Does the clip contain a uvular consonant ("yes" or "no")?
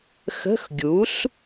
no